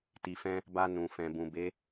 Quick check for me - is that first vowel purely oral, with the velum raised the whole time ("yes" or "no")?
yes